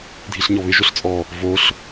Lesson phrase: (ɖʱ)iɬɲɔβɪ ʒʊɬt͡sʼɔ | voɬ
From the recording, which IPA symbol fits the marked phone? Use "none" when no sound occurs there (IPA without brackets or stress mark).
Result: dʱ